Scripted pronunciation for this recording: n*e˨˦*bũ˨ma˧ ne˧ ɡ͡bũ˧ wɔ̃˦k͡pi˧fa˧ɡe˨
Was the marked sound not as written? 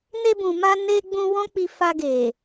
yes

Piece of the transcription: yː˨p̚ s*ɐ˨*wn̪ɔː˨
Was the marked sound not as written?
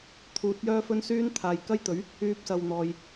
no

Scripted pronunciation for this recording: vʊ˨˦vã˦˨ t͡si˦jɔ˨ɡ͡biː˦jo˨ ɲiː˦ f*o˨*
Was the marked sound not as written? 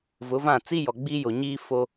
yes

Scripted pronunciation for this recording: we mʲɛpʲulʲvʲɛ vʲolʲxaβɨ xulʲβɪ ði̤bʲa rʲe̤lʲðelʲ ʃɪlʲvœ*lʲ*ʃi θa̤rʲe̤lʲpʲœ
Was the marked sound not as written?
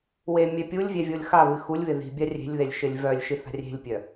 no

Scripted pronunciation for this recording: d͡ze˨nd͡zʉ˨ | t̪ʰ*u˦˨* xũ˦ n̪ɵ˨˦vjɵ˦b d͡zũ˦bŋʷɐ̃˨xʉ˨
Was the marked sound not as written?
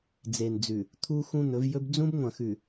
yes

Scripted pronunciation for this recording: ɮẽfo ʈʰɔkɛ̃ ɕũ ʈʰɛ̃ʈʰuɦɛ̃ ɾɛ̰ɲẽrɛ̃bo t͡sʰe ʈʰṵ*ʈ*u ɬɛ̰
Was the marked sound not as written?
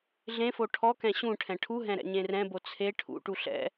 no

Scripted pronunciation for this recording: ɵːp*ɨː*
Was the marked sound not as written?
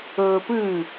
no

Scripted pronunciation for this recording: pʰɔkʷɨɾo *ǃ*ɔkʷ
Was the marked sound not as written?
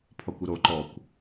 no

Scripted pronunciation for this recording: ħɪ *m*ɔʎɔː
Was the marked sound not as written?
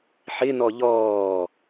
yes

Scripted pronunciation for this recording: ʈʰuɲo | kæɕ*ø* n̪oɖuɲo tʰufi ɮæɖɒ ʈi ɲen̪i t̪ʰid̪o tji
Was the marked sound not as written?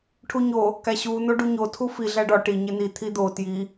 yes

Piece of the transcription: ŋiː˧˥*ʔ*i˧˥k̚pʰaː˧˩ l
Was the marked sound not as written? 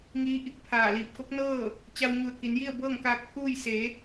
no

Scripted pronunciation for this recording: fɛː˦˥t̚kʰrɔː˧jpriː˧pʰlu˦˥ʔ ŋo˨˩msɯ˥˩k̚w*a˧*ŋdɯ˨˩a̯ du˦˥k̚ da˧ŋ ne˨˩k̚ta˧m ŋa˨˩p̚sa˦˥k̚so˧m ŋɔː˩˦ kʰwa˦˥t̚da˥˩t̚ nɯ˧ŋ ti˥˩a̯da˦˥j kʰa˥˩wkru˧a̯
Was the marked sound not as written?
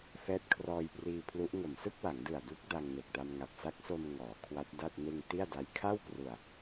yes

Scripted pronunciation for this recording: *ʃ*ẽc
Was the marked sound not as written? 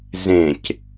yes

